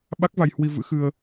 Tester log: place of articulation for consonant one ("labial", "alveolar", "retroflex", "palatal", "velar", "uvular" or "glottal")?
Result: labial